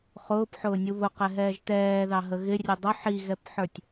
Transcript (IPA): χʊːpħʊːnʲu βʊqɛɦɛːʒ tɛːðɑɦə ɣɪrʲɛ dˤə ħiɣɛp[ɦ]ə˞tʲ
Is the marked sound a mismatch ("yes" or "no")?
yes